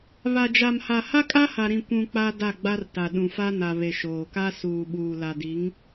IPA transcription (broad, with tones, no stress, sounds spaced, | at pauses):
β a˨ d͡ʒ a˨ m h a˨ h a˦ kʼ a˦ h a˨ ɾ ĩ˨ kʷ ũ˨ k͡p a˦ d a˦˨ ɡ͡b a˦ r t a˨ ɗ ũ˨ f a˦ n a˨ β e˨ ʃ oː˨ k a˦ s uː˨ ɓ uː˨ l a˨ d i˨˦ ŋ